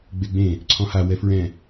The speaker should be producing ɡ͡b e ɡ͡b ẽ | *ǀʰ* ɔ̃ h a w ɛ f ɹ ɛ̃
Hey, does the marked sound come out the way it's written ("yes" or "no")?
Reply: yes